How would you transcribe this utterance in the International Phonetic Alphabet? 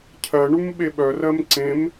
cʰ ɜ ɳ u m ɓ e ɓ œ r ɜ m ǀ ẽ m

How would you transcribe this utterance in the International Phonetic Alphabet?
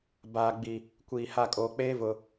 b aː˨ ɡ͡b i˨ | kʷ iː˨ h a˦˨ kʼ oː˨ k͡p eː˦ v ʊ˨

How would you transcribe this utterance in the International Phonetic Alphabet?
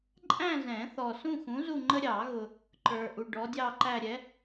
ǃʼ æ̃˥˧ z ɛ̃˨˩˦ θ ɔ˨ s ũ˥˧ x ũ˨˥ z u˥˧ ŋ͡ǃ ə˥ ɾʲ ɑ˨˩˦ ɣ ʊ˨ | ǃ ə˞˨ ʔ u˨ ɖ ɔ˨˥ dʲ ɑ˥˧ ǃ æ˥˧ ɾʲ ɛ˨˥

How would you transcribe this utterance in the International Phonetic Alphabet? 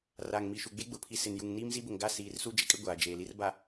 r aː˨ ŋ m i˨ ʃ u˨ ɡ͡b e˦ ɡ͡b ʊ˨ pʰ i˨ s ɪ˨ n j u˨ ŋ n iː˦ m z i˦ b ʊ˨ ŋ ɡ a˦˨ s iː˨ r s u˦ d͡ʒ ɪ˦ kʼ ɪ˦ ɡʷ aː˨ d͡ʒ eː˨ l i˦ r b a˨

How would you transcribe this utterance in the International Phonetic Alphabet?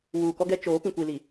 w uː˨ k ɔ˦ ɡ ɛ˦ t͡ʃ oː˨˦ p ĩ˨ kʷ i˨ l i˨

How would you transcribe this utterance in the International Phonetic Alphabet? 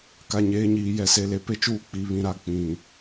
k a˨ ɲ eː˨˦ ɲ iː˨ j ɛ˨ s e˨ l e˨ p e˦ t͡ʃ uː˦˨ k͡p i˨ β ĩ˨ ɾ a˨˦ k͡p ĩ˨

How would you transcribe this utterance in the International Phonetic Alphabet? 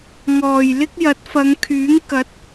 ŋ ɔː˨˩ j l ɪ˥ k̚ j ɐ˨˥ t̚ f ɐ˨˧ ŋ kʰ yː˨˥ ŋ k ɐ˨˥ t̚

